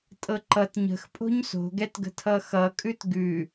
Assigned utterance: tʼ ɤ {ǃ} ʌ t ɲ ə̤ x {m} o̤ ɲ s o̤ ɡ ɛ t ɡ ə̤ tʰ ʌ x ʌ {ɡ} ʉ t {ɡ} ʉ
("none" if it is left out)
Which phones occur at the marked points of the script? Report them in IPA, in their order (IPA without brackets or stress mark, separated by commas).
ǃ, pʼ, kʼ, ɡ